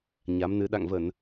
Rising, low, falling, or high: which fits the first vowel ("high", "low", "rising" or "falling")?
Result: rising